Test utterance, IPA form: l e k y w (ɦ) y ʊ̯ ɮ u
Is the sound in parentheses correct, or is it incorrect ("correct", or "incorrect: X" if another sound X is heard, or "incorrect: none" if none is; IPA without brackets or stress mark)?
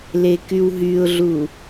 correct